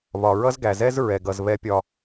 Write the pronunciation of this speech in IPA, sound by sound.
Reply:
β ɒ˨ ɹ ʌ˦ z ɡ æ˨ z ɛ˦ z ɹ ɛ˨ ɡ ʌ˨ z β ɛ˦ pʲ ɒ˦

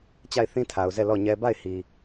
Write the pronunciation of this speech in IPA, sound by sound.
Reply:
t͡ɕ a˦˨ ɪ̯ θ ĩ˦ tʰ a˨ ʊ̯ z ɛ˦˨ l ɔ˦˨ ɲ ɛ˦ b a˦˨ ɪ̯ h i˨

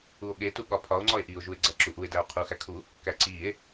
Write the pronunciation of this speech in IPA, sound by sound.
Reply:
u o̯ ɠ e t u ɠ ɒ pʰ ɒ o̯ ŋ͡ǀ ɒ e̯ ʔ i o̯ ʒ u e̯ ɡ͡ǀ æ ǁ u ʔ u e̯ d æ o̯ qʰ u x æ kʰ u | k æ ǀ i e̯

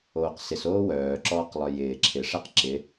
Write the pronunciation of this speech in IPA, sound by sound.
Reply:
oː q s ɪ s oː w œː ǁ ɔː q lˠ œ j ɪː ǁʰ ɪ ʂ ɛ q ǁ ɪ

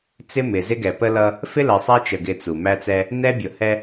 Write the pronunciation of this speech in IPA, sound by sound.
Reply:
t͡s ɪ˦ m ɪ˨ z ɪ˦ ɡ ɛ˨ p ə˦ l ʌ˦ | f ɪ˦ l ɜ˨ sˤ æ˦ t͡ʃ ə˨ ɡ ɪ˦ t͡s u˨ m æ˦ t͡s ɛ˦ | n ɛ˦ bʲ ʊ˨ h ɛ˦

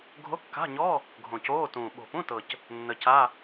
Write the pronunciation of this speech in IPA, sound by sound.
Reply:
ɡʱ o˧˥˧ kː a̤˧˥˧ ɲ ɔ˧˥˧ | ɡʱ õ˨˩ c oː˧˥˧ t ũː˨˩ ɓ o̤˨˩ p ũ˧˥˧ t ɤ˨˩ c | nː ə˨˩ c a˧˥˧

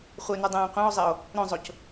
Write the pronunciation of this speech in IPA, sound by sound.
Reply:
χʷ e n u dˤ ɛ̃ː qʷ ɛ̃ o̯ zˤ e o̯ | ɾ õ zˤ o c

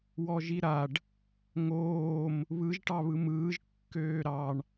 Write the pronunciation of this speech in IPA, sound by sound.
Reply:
w ɔ ʒ i ɾ a ɖ | ŋ oː m | β ɯ ʒ ʈ ɑ β ɯ m ɯː ʒ kː øː ɾ ɑ ɳ

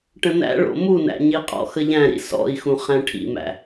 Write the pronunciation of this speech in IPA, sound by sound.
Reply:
ʈ ə̃ n æ̰ ɭ o̰ m u n æ̰ ɲ i qʼ ɔ̰ x ə ʎ æ̃ ɾ ḭ s ɔ̰ i̯ x ũ χ æ̃ ʈʰ ḭ m æ̰

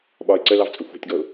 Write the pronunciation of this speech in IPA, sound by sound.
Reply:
ɓ ɒ ɪ̯ ǀ ə l ɑ v t͡sʼ ʊ xʷ ɑ̤ tʲ ɡ ɔ ʊ̯

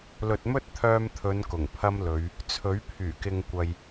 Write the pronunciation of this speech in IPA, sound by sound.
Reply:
l ɵ˨ t̚ m ɵ˥ t̚ t̪ʰ œː˧ m t̪ʰ ɵ˨˧ n k ʊ˨˩ ŋ pʰ ɐ˥ m l ɵ˨˧ ɥ | t͡sʰ ɵ˨˥ ɥ pʰ yː˨˩ k ɪ˧ ŋ kʷ ɐ˨ j

